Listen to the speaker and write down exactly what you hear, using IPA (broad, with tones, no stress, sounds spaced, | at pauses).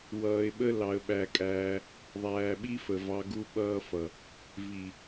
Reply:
w ʌː˧ ɪ̯ ɓ ə˦ l ɑ˧ ə̯ ɓ æ˧ kʼ æː˧ | ðˤ æː˨ ɓ i˦ f ə˨ v ɑ˧ ɡ u˧ ɓ ʌː˧ f ʌ˨ | v i˨